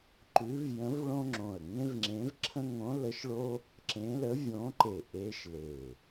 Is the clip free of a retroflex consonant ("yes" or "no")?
no